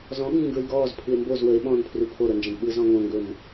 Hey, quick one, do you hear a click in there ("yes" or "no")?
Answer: no